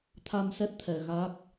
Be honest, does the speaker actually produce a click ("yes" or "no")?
no